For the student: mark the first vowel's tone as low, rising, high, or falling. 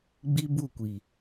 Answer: high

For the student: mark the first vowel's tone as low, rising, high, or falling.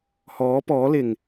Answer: rising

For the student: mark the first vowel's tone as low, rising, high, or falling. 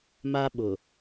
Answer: high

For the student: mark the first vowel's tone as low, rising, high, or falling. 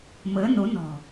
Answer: rising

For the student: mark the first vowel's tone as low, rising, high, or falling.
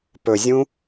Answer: low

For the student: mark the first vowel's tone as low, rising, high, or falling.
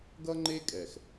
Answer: high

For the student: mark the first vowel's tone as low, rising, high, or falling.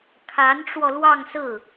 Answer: rising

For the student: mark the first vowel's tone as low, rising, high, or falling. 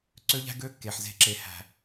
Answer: high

